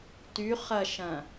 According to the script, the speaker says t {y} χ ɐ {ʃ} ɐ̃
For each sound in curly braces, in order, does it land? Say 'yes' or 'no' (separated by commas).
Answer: yes, yes